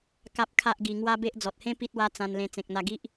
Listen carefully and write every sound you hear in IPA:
ka˦p̚kʰa˦ʔɡi˧ ŋwa˦be˦ʔ d͡zɔ˨t̚hẽ˦ pi˦t̚wa˦t͡sã˧nlẽ˧ t͡sẽ˨k̚n̪a˧ɡi˦ʔ

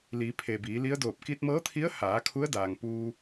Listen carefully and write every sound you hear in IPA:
li˩˧ pʰe˩biː˩˧ li˧˥ə̯doː˧˩p̚ ki˧t̚mɤː˧˥t̪ʰi˧˥ə̯ haː˩˧ kʰu˧˥ə̯daː˩ŋ puː˧

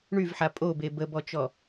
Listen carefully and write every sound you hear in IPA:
ɳyvħa pʼobe bəbɔt͡ʃɔ

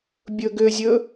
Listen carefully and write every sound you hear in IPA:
bʲɵːɡʏːzʲɵː

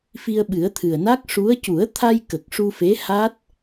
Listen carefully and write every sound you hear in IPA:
fi˧ə̯ɓɨ˨˩˦ə̯t̪ʰɨ˨˩ə̯ na˦˥k̚ʂu˧˥ə̯ cu˨˩˦ə̯t̪ʰa˧j kə˨˩k̚ʂu˧fe˧˥ha˦˥t̚

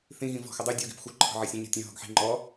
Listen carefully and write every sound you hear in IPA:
θĩɣĩ vɔ̤xədˤu dʲoɡi̤pxʷə˞ ǃʰɔ̤ʕɐsʲə̃ ɲɔ̤tʲə̃ ɦɔ̤ɡħi̤ ŋ͡ǃɔ

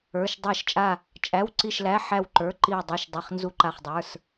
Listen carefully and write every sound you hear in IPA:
ə˞˩˧˩ʃ dˤæ˧˩ʃt͡ʃʼa˧˩ | t͡ʃʼæ˩˧˩wǀi˧˩ʃlæ˩˧˩ ħæ˧˩w ǃə˞˩˧˩ǃi˧˩wdˤi˩˧˩ʃ dˤi˩˧˩χnzu˧˩ǃa˧˩χdˤə˞˩˧˩s

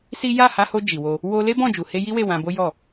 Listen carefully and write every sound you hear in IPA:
si˦ ja˦˨ha˧ho˧ d͡ʒi˨wo˧ | wo˧le˦ bɔ̃˦˨d͡ʒu˨he˧ ji˦we˦˨ wã˧ bo˦jɔ˦˨

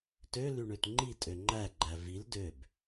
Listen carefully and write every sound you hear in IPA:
tøly ɳøtŋ͡ǃitʼø ŋ͡ǃæɡ͡ǃæ vil døb

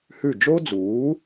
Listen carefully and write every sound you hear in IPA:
hʉ˥˩ d͡ʒo˥d͡zuː˩˥

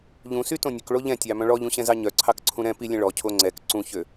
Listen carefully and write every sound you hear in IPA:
ʎũsytõ nʲɵkɭo ʎɛ̃tʲɑmœ̃ ɭɔʎũɕɛ̃zɑ ɲœǀʰɑkǀʰũ ɾɛ̃ pilʲɛ̃ ɭɔcʰo ŋ͡ǀɛk ǀũçø

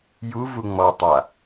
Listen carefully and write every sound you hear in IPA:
ju vuŋ͡mɔtˤa

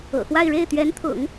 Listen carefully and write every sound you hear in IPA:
ɤ̰˨˩xwa˥˧ɪ̯ ɻe˥˩ɪ̯t̪ɥɛ˧˥nt̪ʰʊ̰˨˩˦ŋ

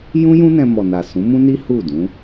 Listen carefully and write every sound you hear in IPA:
jũ˦jũ˦ nɛ̃˧mɔ˨na˨ sũ˨˦mũ˦ni˦ hu˦˨ dũ˨˦

